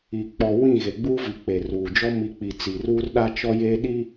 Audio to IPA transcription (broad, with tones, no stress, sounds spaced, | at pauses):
i˨ k͡p ɔ˨ w ĩ˦˨ ɣ e˨ ɡ͡b uː˦ v i˨ k͡p e˨ r uː˨ d͡ʒ ɔ˦ m i˨˦ k͡p i˨ t͡s i˨ r uː˦ r ɗ a˦ t͡ʃ ɔ˦ j eː˦ ɗ i˦